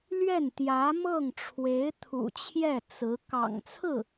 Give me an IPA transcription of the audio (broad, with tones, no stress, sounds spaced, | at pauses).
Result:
l ɥ ɛ˥˩ n t̪ j ä˧˥ m ɤ˥˩ ŋ ʈ͡ʂʰ w e˧˥ ɪ̯ t̪ʰ ṵ˨˩ t͡ɕʰ j ɛ˥˩ t͡s ɹ̩˧˥ k ɑ̰˨˩ ŋ t͡sʰ ɹ̩˥˩